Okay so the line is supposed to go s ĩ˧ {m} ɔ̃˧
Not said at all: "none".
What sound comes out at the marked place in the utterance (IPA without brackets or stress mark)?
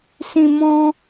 m